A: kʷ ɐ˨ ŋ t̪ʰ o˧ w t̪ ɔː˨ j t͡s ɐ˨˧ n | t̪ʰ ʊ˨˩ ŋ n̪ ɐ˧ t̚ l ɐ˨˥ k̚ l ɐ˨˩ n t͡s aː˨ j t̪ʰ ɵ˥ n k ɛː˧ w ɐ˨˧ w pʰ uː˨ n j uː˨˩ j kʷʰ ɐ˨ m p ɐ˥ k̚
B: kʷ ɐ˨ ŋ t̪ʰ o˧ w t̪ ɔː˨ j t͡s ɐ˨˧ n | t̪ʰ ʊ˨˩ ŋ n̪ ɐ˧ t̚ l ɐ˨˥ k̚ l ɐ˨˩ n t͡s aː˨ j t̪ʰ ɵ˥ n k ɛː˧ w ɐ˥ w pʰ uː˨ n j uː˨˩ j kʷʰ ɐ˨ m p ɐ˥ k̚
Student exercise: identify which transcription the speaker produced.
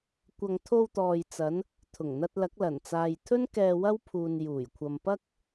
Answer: B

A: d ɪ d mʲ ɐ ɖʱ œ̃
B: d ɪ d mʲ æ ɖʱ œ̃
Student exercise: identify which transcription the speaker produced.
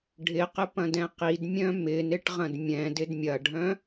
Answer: A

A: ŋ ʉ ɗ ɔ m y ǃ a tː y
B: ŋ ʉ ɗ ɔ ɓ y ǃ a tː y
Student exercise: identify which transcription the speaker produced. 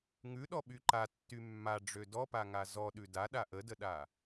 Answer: B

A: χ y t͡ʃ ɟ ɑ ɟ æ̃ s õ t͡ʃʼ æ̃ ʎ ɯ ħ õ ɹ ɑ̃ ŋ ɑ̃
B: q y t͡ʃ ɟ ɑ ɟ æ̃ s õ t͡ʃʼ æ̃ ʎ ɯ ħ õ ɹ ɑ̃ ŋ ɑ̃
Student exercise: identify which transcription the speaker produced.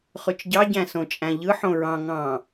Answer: A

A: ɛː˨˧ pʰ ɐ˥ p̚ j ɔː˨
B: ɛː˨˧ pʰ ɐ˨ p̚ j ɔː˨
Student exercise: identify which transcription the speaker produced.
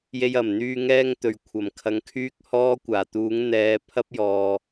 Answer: A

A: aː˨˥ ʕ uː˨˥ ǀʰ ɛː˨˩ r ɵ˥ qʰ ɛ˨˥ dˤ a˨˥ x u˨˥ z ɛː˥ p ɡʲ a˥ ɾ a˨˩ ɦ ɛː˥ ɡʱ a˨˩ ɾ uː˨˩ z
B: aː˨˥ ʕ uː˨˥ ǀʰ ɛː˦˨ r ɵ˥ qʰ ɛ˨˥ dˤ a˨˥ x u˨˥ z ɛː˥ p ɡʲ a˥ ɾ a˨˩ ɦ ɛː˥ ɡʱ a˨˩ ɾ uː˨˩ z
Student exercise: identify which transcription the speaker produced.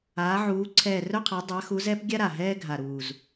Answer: B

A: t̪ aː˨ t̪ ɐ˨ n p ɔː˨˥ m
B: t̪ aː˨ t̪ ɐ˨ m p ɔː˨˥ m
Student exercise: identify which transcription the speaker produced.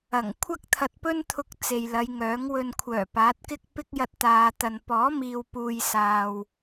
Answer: A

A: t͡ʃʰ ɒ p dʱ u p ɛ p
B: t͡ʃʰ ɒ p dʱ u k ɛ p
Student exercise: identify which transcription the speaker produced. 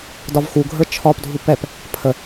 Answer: A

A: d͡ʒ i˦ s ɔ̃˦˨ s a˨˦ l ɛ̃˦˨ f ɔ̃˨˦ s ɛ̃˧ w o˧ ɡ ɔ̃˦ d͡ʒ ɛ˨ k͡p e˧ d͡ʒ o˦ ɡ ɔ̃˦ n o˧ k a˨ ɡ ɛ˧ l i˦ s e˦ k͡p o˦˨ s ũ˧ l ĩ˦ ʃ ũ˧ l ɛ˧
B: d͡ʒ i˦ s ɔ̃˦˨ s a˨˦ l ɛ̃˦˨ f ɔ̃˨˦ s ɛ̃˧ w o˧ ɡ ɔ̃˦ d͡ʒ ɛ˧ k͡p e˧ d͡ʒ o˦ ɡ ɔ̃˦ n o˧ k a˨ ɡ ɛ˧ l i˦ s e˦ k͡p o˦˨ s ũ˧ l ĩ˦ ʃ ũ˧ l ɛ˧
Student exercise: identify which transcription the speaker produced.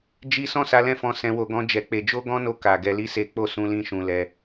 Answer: B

